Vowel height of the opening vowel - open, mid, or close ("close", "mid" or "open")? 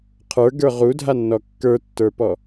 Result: mid